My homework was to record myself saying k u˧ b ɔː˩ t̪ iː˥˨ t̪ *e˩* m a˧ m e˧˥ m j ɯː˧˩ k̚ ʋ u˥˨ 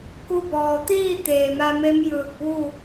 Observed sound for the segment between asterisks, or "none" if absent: eː˩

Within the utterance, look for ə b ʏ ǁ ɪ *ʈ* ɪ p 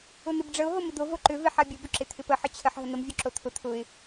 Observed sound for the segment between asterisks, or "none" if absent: t̪ʰ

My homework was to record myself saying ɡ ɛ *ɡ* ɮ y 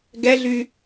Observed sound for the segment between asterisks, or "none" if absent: none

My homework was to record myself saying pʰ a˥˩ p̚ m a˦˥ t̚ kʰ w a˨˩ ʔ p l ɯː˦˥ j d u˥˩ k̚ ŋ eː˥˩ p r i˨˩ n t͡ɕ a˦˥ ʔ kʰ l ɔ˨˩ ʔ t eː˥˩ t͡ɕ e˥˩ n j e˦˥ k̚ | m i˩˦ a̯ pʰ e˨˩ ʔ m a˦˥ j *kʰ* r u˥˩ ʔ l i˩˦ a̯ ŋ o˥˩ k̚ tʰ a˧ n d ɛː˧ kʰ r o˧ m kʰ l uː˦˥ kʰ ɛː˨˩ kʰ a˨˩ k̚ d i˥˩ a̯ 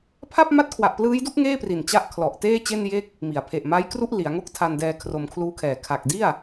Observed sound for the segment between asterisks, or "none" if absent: k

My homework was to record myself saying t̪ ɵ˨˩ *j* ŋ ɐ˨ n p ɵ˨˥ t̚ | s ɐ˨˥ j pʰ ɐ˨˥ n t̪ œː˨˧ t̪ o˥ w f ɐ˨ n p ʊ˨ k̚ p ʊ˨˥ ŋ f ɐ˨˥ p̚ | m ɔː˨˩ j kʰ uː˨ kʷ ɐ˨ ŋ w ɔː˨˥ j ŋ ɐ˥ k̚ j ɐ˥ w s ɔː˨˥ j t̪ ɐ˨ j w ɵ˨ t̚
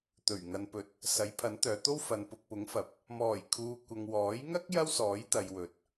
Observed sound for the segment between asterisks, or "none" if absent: ɥ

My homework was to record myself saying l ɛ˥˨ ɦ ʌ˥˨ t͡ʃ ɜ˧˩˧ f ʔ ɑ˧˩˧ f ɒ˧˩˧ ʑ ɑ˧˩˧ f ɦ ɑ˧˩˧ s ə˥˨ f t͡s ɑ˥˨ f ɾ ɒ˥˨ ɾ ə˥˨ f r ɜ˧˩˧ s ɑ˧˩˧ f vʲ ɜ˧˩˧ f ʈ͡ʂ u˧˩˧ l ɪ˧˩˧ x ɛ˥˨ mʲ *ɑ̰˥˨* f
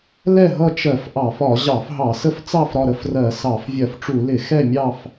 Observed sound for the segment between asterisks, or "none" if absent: ɑ˥˨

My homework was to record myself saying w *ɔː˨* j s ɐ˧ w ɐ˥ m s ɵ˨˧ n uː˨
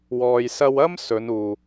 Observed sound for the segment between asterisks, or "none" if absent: ɔː˨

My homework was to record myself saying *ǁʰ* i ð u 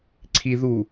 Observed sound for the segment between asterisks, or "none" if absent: ǀʰ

